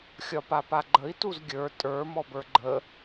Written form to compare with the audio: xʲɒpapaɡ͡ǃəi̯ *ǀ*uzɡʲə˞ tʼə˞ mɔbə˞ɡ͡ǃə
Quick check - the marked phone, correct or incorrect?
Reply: incorrect